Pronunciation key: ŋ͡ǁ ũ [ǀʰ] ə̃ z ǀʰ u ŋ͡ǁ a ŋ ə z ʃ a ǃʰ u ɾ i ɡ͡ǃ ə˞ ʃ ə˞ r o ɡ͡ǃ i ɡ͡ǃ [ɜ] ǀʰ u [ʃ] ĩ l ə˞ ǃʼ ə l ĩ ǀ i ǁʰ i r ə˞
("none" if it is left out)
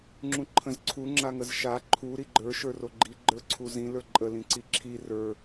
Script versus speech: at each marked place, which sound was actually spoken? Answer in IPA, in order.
ǃʰ, ə˞, z

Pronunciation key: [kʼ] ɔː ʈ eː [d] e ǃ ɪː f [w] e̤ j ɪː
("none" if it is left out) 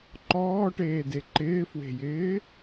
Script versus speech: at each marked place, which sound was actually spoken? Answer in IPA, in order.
ǃ, d, w

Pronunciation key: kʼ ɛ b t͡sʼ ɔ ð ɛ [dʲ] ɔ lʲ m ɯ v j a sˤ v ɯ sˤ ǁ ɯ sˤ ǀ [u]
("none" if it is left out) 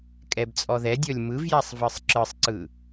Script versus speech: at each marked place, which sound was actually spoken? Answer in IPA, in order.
dʲ, ɯ

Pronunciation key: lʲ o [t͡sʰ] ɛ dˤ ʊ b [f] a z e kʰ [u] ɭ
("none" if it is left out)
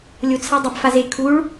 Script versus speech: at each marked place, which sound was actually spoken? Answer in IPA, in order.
t͡sʰ, f, u

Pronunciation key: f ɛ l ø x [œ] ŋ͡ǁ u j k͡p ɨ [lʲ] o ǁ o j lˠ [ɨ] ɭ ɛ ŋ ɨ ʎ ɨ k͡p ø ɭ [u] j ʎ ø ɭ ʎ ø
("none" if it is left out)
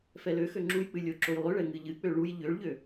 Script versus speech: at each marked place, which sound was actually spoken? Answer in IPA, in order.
ø, lʲ, ʏ, u

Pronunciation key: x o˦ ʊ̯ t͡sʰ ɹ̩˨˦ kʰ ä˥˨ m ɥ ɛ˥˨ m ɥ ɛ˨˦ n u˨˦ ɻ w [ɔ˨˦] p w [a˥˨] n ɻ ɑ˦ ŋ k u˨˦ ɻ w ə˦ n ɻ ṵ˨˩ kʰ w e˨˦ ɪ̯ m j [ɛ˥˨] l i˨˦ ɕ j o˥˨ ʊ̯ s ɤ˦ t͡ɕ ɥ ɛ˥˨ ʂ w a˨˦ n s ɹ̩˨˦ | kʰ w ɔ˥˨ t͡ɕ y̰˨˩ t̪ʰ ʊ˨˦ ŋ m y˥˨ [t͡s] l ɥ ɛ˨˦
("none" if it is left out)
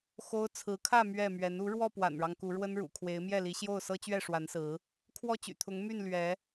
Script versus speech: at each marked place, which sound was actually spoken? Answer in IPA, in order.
ɔ˥˨, a̰˨˩, ɛ˥˨, n

